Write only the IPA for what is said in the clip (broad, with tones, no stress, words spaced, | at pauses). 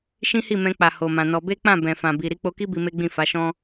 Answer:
ʃĩ˦hi˦˨mɛ̃˧k͡pa˨ ho˨mã˨nɔ˧ be˦k͡pã˦˨ bɛ̃˨fã˨bi˨ ɾi˨˦k͡po˧ki˦ bi˧me˦ɡ͡bĩ˦˨ fa˨˦ʃɔ̃˦